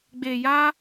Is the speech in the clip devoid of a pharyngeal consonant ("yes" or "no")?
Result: yes